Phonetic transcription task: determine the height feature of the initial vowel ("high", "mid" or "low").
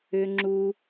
high